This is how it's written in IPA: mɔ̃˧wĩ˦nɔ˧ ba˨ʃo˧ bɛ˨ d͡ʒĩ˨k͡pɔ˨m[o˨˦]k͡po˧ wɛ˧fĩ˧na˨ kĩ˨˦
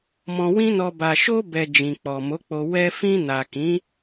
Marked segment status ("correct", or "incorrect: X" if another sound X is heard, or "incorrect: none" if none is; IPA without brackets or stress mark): correct